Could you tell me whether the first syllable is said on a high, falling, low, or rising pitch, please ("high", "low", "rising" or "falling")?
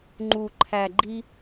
low